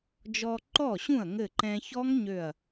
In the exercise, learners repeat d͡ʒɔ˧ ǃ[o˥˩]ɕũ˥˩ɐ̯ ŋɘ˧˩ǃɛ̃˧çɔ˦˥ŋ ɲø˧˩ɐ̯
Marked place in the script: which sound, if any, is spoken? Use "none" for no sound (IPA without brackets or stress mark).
ɔ˥˩